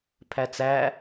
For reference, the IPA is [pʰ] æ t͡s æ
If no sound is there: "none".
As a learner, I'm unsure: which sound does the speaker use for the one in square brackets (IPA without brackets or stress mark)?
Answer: pʰ